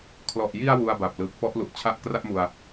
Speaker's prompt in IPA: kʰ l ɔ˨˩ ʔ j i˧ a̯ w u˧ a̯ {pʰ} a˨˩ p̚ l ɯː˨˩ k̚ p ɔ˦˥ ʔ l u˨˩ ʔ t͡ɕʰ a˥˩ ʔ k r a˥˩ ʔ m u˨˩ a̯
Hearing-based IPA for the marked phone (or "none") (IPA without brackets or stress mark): b